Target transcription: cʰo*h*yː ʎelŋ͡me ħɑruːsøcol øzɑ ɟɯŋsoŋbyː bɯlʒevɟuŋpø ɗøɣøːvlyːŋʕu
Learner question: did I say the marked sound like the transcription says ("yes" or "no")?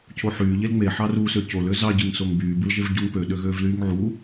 no